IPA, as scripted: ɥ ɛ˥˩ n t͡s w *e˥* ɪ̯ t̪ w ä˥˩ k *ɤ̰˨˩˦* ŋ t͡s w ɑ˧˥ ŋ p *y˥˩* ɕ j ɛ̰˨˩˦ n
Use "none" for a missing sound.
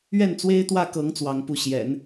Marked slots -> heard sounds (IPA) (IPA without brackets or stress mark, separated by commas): e˥, ɤ˧˥, u˥˩